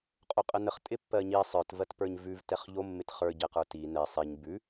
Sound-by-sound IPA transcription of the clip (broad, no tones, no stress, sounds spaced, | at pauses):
qʼ o qʼ ə n ə χ tʼ ɪ pː ɜ ɲ i sˤ ə˞ t v ɜ t p ə˞ ɲ v ʉ v t ɛ χ ʎ o mː ɪ t χ ə˞ ɟ ɛ q ə˞ t i n ɛ sˤ i ɲ b ʉ